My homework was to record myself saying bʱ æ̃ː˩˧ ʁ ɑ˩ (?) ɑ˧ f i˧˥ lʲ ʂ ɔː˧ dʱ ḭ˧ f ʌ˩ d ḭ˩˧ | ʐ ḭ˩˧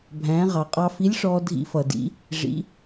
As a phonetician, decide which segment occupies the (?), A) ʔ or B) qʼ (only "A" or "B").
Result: B